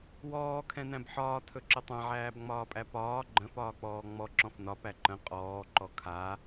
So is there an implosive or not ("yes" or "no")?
no